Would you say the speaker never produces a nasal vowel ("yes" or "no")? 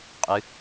yes